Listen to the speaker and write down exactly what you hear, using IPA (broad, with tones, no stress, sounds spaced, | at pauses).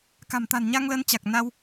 k a̤˨˩ m t̪ a̤˨˩ n ɲ a˧ ŋ l ə˨˦ n t͡ɕ a˨˩ k̚ n a˧ w